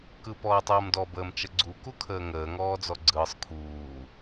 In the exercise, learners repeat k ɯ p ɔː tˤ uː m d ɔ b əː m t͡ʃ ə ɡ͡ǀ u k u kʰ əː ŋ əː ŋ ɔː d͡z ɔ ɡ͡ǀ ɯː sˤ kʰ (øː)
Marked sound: incorrect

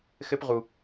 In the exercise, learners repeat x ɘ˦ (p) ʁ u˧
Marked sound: correct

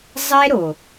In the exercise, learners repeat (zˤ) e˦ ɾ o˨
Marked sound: correct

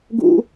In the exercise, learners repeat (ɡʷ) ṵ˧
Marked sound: incorrect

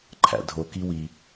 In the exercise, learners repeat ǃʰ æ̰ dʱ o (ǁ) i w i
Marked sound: incorrect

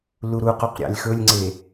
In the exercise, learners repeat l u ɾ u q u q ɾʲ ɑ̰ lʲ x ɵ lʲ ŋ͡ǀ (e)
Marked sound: correct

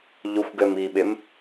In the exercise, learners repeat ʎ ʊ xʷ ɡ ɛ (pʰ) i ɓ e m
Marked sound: incorrect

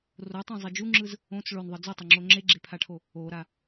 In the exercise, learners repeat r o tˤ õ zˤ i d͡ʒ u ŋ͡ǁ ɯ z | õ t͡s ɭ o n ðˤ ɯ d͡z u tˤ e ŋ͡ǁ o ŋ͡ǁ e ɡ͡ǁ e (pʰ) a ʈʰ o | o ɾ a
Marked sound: correct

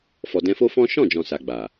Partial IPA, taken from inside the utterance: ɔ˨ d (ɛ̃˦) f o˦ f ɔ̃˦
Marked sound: incorrect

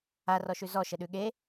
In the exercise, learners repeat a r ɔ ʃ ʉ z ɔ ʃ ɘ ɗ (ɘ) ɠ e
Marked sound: incorrect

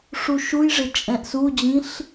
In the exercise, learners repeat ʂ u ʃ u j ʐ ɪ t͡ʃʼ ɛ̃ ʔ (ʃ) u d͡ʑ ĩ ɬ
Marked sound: incorrect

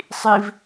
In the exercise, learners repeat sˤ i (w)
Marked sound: incorrect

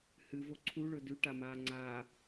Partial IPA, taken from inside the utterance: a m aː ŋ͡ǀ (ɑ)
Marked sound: incorrect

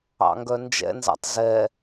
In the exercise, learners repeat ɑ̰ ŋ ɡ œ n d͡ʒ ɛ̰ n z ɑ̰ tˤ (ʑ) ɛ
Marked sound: incorrect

